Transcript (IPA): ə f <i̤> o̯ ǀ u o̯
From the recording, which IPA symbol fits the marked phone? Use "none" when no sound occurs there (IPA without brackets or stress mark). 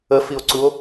i